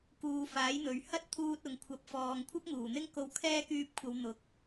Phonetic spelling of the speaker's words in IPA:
k uː˨˧ f aː˨˥ j n̪ ɵ˨ ɥ h ɐ˥ t̚ t̪ʰ uː˧ t̚ ʊ˨ ŋ kʷʰ ɐ˨˥ p̚ f ɔː˨ ŋ kʷʰ ɐ˥ p̚ ŋ uː˨˩ n̪ ɪ˥ ŋ k o˧ w kʰ ɛː˥ k yː˧ p̚ kʷʰ ɐ˨˧ w n̪ ʊ˨˥ k̚

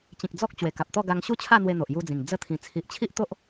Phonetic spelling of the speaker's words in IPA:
t͡ɕ ĩ˨ k̚ d͡z ɔ˦ k̚ t͡ɕ w e˨˩ k a˨ p̚ t̪ ɔ˥˧ ɡ a˧ ŋ ɕ u˥˧ t͡ɕʰ a˥˧ n̪ w e˧ n̪ o˨ ʔ j u˧ d͡z ĩ˨˩ ŋ d͡z ə˧ t̪ʰ ĩ˨˩ t͡sʰ i˨ ʔ t͡ɕʰ i˦ ʔ t̪ o˦ ʔ

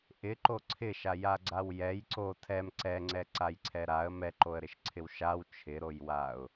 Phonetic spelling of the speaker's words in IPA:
ʔ ɪ ǃ o ǀʰ ɪ ʃ a j a ɡ͡ǀ a w j ɛ j ǀ o tʰ ɛ m ǀ ɛ ŋ͡ǀ ɛ ǀ a j ǀʰ ɛ ɾ a ə̯ m ɛ ǃ o ə̯ ɾ ɪ ʃ ǀʰ ɪ w ʃ a w t͡ʃʰ ɪ ɾ o j w a ʊ̯

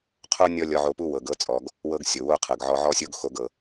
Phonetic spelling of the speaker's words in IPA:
qʰ o˥ nʲ ɔ˥ lʲ ɔ˧ ʕ o˧ p u˥ w ɤ˩ ɡ ɤ˧ t͡sʼ ɔ˩ ɡ | w ɤ˧ ɡ sʲ o˩ w o˧ qʰ ɤ˩ ɡ ʕ ɔ˧ ʕ ɔ˥ sʲ o˥ ɡ x o˧ ɡ ɤ˩

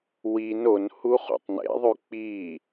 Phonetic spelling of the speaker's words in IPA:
w i n o n h u χ ṵ tˤ n ḛ ðˤ ʉ k͡p i

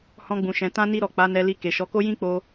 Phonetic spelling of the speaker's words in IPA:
h ɔ̃˧ ɡ͡b ũ˨ ʃ ɛ̃˨ t ã˧ n i˧ ɾ ɔ˨ k͡p a˨˦ n ɛ˧ l i˧ k e˨ ʃ ɔ˨˦ k o˦ j ĩ˦ k͡p o˧

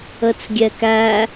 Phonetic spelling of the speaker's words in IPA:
ə t͡s ɡʲ ɛ k æ

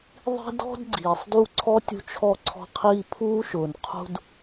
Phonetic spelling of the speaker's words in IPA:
ðˤ i̤˥ d ɔ̤˥ d ɡ͡ǀ iː˩ sˤ d u˦ ǀʰ ɔ˥ tʲ ṳ˦ t͡ʃʰ ɔ˦ ǀʰ ɔ̤˦ qʰ iː˦ pʰ uː˥ ʃ ʊː˨ n qʰ ṳ˥ d

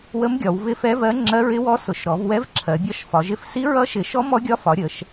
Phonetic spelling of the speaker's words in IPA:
w ə˧˥ m ɡʲ ɒ˩˧ w v ɪ˧˥ f ɛ˧˥ v ɜ˧˥ ŋ͡ǁ ɜ˧˥ ɹ ɪ˧˥ w ɔ˧˥ s ʊ˩˧ ʃ ɾ ɔ˩˧ v w ɛ˧˥ v ǁʰ ɜ˩˧ bʲ ɒ˧˥ ʃ f ɒ˩˧ ʒ ɪ˧˥ f s i˧˥ ɹ ʌ˧˥ ʃ ɪ˩˧ ʃ ɔ˧˥ m ɔ˧˥ ɡʲ ɒ˧˥ f ɒ˩˧ ɾʲ ə˩˧ ʃ

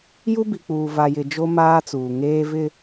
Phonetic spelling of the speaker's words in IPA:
j u˦ b i˨ k͡p uː˨ v a˨ j ɪ˨ d͡ʒ o˦ m aː˦ t͡s uː˨ ŋ eː˦ v ɪ˦

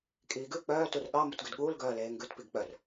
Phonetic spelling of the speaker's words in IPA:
kʼ iː ɡ ʉ k͡p œː t u r ɠ ɑ m u t ɡ ʉ d ɠ uː l ɡ œː l eː ŋ ɡ ʉ t p i ɡ k͡p œ r

